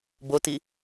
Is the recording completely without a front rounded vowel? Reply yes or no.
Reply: yes